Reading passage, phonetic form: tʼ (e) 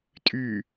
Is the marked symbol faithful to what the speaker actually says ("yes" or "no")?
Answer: no